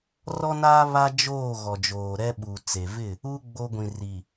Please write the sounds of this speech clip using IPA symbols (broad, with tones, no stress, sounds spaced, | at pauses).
r ɔ˦ n aː˦ β a˦ d͡ʒ oː˦˨ ɣ ɔ˨ d͡ʒ oː˨ ɾ ɛ˦ ɓ u˨ t͡s e˨ v ɪ˦˨ | u˦ ɡ͡b o˦ ɡʷ ĩ˨ r i˨